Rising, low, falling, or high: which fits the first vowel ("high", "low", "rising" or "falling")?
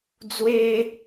high